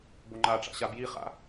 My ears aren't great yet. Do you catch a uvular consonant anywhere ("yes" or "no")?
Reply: yes